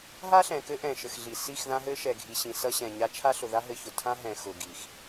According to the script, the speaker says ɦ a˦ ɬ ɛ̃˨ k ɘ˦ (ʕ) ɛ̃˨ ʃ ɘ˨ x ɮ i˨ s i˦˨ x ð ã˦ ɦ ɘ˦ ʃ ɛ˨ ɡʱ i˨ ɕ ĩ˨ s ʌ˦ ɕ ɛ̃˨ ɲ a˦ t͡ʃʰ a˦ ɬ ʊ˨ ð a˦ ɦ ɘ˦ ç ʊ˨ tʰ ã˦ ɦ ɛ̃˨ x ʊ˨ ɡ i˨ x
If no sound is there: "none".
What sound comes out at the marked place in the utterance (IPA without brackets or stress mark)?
ʔ